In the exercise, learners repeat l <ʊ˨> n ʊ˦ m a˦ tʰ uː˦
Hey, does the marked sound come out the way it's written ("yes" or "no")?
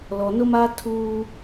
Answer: no